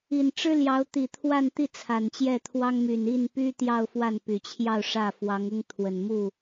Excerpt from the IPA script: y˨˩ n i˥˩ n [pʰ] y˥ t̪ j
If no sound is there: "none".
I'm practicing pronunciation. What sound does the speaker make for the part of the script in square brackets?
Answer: p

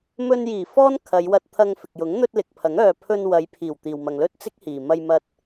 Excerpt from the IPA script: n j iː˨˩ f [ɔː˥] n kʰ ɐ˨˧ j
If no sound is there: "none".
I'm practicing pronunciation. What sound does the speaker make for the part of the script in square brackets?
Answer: ɔː˥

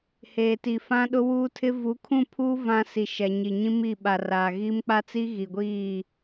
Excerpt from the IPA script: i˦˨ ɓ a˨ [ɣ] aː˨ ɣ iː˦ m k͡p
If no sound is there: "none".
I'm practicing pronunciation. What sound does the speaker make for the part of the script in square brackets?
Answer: r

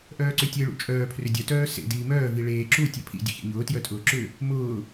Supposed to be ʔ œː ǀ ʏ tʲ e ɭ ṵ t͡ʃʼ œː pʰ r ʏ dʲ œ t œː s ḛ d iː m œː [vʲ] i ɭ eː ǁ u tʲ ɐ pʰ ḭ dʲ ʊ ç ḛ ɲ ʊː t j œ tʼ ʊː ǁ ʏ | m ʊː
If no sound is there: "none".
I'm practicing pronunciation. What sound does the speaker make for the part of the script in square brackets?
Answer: v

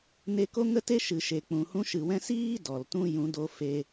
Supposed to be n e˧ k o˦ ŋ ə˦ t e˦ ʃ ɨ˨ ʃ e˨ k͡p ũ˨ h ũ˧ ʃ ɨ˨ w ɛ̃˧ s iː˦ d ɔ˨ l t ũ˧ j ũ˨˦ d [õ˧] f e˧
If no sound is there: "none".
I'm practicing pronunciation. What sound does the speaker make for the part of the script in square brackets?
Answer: o˧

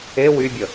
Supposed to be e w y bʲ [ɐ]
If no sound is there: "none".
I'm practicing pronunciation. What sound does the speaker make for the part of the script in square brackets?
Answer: ə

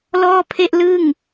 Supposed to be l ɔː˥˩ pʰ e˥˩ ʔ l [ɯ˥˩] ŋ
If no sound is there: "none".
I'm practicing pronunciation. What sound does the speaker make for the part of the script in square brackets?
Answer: ɯ˥˩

